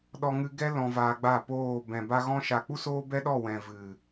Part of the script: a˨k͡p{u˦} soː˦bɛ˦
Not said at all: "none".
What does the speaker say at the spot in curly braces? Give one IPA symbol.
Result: u˦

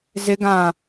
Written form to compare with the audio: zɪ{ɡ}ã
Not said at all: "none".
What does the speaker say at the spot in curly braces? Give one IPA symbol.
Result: ɡ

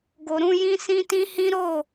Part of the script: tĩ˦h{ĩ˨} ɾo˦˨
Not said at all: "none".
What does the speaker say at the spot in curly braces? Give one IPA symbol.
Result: ĩ˦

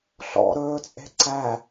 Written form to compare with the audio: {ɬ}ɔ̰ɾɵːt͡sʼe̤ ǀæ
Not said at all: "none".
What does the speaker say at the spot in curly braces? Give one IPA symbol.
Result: ɬ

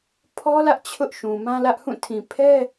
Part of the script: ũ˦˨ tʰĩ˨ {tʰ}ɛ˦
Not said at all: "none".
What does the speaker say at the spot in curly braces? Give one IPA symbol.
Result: pʰ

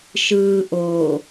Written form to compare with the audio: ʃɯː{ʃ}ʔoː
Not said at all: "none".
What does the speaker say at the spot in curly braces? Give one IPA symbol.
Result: none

